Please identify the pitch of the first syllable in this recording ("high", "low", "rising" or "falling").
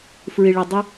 low